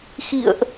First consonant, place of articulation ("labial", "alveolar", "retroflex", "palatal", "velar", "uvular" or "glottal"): velar